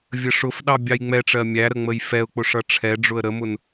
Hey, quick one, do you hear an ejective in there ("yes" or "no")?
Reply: no